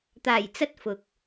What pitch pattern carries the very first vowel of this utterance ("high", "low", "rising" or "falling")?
low